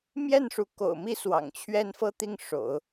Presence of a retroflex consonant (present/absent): present